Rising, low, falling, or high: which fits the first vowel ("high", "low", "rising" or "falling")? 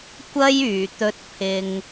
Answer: high